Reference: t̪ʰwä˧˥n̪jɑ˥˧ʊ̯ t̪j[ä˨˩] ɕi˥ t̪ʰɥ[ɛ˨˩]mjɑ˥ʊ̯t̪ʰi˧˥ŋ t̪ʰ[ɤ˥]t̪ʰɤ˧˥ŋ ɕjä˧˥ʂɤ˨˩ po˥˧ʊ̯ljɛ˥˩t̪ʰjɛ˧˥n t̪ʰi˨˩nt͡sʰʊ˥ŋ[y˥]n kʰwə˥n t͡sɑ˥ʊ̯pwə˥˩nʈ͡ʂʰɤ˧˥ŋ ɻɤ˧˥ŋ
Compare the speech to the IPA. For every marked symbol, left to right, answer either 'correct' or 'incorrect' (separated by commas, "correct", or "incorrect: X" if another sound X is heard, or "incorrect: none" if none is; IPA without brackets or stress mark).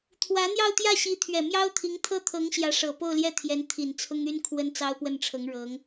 incorrect: ä˥˩, correct, correct, correct